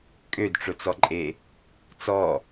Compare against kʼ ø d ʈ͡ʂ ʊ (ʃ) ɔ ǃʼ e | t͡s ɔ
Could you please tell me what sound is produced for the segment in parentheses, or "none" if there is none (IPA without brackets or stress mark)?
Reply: t͡s